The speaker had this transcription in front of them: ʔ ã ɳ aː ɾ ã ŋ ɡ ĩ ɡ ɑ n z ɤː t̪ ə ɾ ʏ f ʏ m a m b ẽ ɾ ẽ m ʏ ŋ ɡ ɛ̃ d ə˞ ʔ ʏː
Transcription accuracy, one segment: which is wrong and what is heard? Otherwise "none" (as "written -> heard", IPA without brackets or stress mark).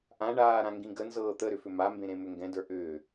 ɑ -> ə